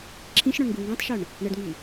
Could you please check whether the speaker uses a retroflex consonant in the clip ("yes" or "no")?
yes